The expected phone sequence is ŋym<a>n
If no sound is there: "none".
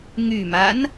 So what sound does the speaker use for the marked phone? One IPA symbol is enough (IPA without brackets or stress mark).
a